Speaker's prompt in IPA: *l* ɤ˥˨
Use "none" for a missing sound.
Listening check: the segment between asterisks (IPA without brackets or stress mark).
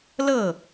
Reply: l